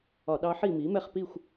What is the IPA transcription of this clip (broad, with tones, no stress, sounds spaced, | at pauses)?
ɒ˧˩˧ ɗ ɑ˧˥ ħ i˥˨ m i˩˥ m ɛ˥˨ χ p i˥˨ xʷ